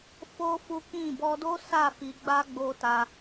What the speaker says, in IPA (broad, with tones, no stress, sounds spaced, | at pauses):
f o˦ f u˦ k ĩ˦˨ b ɔ˧ d o˦ s a˦˨ f i˧ ɡ͡b a˦ ɡ͡b o˧ t a˧